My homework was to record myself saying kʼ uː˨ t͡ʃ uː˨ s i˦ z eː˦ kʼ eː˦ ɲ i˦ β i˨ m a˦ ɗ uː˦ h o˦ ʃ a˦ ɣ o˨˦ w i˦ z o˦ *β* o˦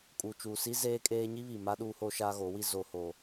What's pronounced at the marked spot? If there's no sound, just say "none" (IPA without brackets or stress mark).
h